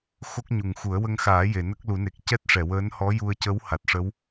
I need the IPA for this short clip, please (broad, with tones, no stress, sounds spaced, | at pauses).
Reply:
x o˦˥ k̚ ɲ u˨˩ ŋ x u˨˩˦ ə̯ w ə˧ ŋ x aː˨˩˦ j e˨˩˨ n ə˦˥ k̚ l u˨˩˦ n e˨˩ k̚ c ɛ˦˥ t̚ ʂ ɛ˨˩˨ w əː˧˥ n h ɔ˧˥ j u˧ ə̯ c ə˧˥ w h a˨˩ t̚ ʂ ə˧˥ w